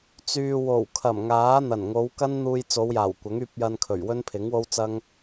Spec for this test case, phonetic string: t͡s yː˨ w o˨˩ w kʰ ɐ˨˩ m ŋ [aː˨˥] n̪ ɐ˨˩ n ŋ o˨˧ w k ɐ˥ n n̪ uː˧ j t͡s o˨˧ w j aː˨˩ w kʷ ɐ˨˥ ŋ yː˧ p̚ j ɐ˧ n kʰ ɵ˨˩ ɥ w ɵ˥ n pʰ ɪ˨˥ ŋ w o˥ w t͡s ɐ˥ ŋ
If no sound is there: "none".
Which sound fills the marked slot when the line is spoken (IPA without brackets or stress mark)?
aː˨˥